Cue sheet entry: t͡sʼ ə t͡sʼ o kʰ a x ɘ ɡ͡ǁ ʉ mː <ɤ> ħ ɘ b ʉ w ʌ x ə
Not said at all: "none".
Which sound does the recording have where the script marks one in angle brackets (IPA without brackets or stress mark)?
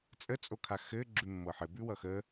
ɤ